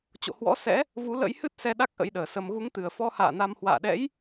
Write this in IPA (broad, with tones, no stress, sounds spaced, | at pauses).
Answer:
t͡ɕ o̰˧˨ h w ɔ̰˧˥ s ɛ̰˧˥ | v u˨˦ l ə̰˧˥ j h ɨ˦˥ t̚ s ɛ˧ ɗ a˦˥ k̚ ʔ ə̰˧˥ j ɗ əː˨˩ s ə˧ m ɣ u˨˦ ŋ t̪ ɨ˨˩ ə̯ f ɔ˧ h a̰ː˧˨ n a˧ m h w a̰ː˧˨ ɗ ɛ̰˧˥ j